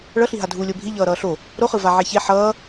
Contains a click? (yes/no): no